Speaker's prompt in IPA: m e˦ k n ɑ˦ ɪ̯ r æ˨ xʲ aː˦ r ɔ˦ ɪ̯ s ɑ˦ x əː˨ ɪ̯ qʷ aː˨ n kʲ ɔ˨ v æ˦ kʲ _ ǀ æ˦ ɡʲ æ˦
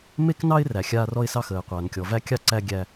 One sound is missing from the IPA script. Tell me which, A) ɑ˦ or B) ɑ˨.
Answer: A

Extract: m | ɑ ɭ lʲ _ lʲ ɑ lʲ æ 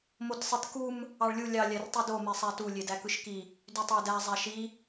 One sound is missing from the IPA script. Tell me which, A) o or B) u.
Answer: B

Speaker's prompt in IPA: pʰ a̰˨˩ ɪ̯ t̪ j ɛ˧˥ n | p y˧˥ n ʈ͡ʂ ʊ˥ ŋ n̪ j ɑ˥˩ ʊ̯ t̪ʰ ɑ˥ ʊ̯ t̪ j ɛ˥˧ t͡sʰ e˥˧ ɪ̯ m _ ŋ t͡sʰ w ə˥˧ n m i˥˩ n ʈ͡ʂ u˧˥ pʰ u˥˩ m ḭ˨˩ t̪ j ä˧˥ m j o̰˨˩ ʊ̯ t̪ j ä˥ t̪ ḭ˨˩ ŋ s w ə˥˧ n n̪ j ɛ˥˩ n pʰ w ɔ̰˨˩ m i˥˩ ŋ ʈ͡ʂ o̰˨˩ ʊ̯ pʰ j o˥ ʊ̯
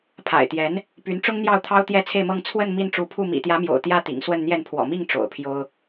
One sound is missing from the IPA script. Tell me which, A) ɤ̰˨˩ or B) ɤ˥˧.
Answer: B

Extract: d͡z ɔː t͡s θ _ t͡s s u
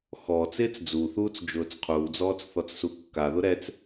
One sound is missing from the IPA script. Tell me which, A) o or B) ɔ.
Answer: B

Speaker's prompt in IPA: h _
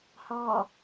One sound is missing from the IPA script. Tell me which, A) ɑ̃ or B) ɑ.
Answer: B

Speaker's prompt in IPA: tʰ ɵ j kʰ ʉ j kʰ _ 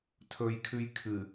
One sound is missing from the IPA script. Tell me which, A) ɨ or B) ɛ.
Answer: A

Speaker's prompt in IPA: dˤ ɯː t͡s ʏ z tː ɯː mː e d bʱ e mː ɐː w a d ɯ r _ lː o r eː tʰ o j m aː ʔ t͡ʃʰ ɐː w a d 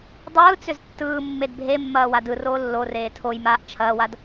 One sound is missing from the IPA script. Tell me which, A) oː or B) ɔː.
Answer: A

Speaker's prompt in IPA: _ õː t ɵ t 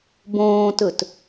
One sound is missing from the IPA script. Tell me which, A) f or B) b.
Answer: B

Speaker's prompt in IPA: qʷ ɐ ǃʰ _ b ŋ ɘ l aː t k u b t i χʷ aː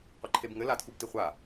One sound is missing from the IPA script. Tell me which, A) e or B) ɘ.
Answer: A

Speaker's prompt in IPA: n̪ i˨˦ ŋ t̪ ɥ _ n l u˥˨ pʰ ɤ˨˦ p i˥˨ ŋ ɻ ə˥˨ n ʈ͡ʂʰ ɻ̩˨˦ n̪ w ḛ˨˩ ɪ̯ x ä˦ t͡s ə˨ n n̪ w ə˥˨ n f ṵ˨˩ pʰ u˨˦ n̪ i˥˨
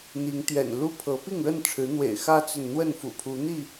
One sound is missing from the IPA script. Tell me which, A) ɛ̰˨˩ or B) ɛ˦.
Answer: A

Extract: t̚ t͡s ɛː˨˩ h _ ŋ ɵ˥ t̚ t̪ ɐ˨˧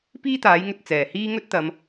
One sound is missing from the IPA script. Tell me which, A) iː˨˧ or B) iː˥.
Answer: B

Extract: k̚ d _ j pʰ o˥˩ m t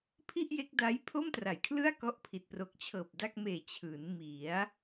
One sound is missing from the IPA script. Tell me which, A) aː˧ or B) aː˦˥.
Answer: B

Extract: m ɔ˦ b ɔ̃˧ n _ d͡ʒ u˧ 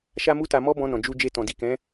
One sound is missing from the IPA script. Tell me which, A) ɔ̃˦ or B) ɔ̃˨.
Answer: B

